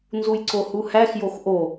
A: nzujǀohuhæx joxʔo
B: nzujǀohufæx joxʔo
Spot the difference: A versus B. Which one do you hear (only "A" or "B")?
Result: A